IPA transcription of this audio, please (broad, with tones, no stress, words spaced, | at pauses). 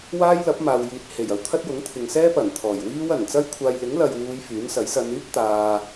waː˥jlɐ˨˥p̚maː˨wjiː˨t̚ he˨˩j ɐ˧wt̪ʰɐ˥t̚ jʊ˨˥ŋt̪ʰɪ˨ŋsɛː˥pɐ˨˩n t̪ʰɔː˨˩jwiː˥w ɐ˨˩nt͡sɐ˥jkʷʰaː˧j lɪ˨˥ŋlɐ˨jwuː˨˧j fyː˨˥nsɐ˨˥j sɐ˨˧nyː˥p̚ t̪aː˨